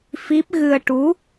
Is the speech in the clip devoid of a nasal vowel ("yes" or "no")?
yes